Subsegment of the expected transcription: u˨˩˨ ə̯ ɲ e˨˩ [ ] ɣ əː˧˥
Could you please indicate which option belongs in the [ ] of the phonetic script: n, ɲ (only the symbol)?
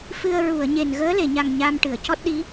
n